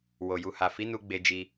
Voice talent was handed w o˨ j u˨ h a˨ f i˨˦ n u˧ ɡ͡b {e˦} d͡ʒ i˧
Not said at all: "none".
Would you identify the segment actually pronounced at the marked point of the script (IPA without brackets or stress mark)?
e˧